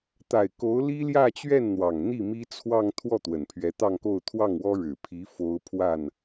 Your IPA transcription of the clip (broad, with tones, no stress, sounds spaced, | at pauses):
t̪ a˨˩ ɪ̯ k o˧˥ ʊ̯ l i˥ l j ä˥˧ t͡ɕ ɥ ɛ˥˩ n n̪ w ɑ˨˩ ŋ n̪ i˥˩ m i˥ t͡sʰ w ɑ˥˧ ŋ t̪ʰ w ɔ˥˩ t̪ w ə˨˩ n pʰ ɥ ɛ˧˥ t̪ ɑ˥˧ ŋ k o˥˧ ʊ̯ t̪ʰ w ɑ˥˩ ŋ w ɔ˥ ɻ ɻ̩˨˩ pʰ i˧˥ f o˥ ʊ̯ pʰ w a˥˩ n